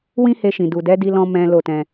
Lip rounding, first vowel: unrounded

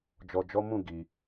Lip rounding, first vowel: rounded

